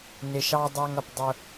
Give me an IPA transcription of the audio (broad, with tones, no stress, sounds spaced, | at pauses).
n ɪ˨ ʃ ɑ˦ dˤ æ˦ ŋ ʌ˨ p dˤ ʊ˦